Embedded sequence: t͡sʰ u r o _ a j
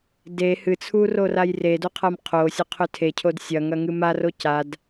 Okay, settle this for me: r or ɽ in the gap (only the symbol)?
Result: r